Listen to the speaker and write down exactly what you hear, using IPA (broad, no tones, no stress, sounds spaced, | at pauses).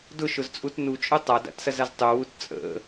d ʊ ʃ ʊ z t͡sʼ u t n u t͡ʃʼ ʊ tˤ a d a̰ t s ɐ z a z tˤ u w u t t͡sʼ ə̰